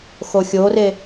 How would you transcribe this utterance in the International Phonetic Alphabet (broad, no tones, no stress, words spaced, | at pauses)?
xoxʲore